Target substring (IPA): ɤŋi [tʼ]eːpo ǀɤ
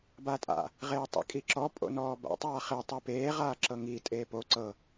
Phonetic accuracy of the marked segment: correct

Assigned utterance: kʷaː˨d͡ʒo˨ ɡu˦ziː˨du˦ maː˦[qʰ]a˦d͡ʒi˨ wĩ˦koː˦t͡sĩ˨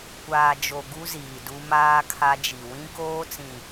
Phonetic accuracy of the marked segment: incorrect: kʰ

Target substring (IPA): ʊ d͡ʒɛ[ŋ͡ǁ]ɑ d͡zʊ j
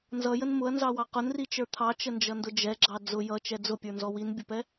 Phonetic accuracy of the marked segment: incorrect: ɡ͡ǁ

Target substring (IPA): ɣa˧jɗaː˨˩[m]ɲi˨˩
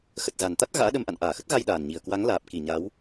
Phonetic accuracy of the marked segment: incorrect: n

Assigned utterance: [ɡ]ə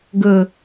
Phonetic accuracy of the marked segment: correct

